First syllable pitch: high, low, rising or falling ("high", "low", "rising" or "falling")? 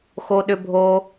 high